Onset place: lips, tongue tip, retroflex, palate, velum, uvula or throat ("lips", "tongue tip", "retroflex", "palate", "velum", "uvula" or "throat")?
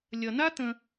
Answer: tongue tip